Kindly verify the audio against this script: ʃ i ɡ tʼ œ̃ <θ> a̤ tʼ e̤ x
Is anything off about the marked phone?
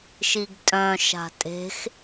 yes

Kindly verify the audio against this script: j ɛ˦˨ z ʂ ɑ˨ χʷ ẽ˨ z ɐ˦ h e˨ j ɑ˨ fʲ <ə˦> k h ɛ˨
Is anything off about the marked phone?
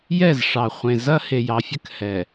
no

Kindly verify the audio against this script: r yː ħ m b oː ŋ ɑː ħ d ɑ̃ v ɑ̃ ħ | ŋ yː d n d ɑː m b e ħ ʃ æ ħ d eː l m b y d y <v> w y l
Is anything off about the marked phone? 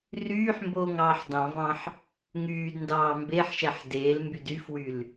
yes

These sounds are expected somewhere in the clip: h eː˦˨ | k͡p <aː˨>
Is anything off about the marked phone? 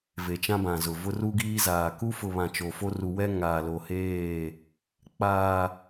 no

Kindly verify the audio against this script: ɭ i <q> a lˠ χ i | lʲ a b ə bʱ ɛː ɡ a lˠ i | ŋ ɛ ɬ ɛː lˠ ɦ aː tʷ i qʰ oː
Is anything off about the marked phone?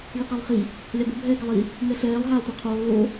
no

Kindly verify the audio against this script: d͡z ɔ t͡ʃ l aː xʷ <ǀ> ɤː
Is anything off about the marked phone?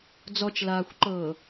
yes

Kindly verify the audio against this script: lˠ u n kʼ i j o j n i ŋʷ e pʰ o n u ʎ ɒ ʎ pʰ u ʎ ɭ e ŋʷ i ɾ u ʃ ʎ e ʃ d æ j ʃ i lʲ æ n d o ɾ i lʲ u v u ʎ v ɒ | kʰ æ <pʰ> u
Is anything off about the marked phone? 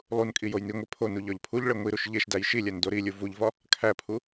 no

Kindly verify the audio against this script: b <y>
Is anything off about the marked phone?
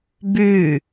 no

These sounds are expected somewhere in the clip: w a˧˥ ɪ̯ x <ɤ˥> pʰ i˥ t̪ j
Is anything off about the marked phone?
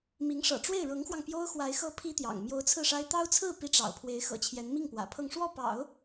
no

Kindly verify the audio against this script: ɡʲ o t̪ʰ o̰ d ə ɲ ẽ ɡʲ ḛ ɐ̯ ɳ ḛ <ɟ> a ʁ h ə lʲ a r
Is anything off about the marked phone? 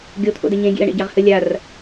no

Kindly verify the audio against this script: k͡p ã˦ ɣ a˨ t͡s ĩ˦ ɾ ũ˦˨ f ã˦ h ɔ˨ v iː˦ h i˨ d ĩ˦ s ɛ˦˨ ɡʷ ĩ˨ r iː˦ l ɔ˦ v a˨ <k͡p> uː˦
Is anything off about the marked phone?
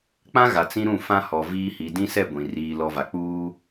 no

